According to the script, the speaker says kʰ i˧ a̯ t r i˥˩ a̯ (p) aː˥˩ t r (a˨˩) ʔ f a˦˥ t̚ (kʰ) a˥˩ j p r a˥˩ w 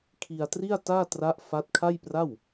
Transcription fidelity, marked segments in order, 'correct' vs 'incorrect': incorrect: t, incorrect: a˦˥, correct

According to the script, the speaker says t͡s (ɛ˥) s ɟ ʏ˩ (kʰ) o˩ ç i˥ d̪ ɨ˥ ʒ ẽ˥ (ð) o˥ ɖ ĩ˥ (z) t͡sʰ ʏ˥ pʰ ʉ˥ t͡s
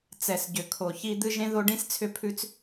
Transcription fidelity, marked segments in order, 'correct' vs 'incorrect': incorrect: ɛ˩, correct, correct, incorrect: s

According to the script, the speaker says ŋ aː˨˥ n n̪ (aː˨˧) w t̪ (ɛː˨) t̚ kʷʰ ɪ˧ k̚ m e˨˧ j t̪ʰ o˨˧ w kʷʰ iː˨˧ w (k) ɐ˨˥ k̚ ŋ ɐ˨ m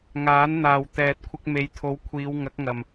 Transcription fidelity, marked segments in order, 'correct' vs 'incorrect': incorrect: aː˨, correct, incorrect: ŋ

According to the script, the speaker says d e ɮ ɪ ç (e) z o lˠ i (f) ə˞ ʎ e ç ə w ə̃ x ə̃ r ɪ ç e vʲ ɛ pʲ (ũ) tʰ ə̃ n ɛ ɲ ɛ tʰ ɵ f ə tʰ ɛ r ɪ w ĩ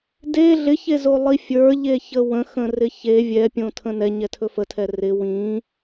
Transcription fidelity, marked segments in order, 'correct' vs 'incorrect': correct, incorrect: fʲ, incorrect: õ

